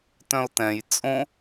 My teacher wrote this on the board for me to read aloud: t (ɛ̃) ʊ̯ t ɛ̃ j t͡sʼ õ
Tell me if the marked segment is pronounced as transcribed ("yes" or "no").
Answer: no